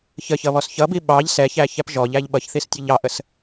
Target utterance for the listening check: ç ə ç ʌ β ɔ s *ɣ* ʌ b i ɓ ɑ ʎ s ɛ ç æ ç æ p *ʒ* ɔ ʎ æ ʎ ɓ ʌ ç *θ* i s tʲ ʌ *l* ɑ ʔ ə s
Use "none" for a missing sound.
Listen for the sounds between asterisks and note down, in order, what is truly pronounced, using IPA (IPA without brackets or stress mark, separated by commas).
ç, ʒ, θ, ʎ